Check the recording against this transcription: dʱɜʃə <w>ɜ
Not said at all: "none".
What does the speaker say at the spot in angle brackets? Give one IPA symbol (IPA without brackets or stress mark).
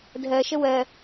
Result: w